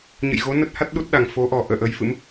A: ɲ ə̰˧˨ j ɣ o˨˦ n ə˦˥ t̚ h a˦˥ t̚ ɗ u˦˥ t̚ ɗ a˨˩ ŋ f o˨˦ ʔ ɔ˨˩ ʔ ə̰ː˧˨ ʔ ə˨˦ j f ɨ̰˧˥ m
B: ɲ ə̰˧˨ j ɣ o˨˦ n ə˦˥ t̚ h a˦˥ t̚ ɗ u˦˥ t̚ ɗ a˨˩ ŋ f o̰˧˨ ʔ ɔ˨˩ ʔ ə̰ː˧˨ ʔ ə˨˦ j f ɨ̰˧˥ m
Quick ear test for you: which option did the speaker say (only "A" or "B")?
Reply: A